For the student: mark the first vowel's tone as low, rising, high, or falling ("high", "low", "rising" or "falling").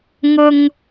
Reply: low